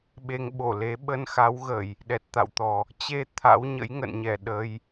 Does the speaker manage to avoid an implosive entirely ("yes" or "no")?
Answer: no